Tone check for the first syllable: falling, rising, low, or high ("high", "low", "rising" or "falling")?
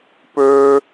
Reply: high